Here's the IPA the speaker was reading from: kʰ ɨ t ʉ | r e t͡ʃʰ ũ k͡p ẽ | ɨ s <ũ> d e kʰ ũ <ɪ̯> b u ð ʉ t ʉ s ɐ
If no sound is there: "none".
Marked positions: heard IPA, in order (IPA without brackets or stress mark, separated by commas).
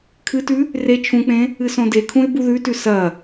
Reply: õ, ɪ̯